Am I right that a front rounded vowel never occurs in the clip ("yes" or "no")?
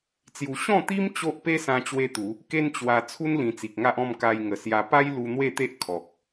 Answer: yes